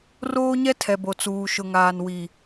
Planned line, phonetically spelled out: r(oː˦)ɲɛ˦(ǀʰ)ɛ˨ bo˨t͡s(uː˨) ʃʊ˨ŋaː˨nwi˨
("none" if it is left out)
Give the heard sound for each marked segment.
oː˦, tʰ, uː˨

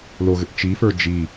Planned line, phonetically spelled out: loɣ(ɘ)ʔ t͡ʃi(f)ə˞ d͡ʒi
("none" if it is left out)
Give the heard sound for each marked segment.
ɘ, f

